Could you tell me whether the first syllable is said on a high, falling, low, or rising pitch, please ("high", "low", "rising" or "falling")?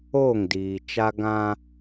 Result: falling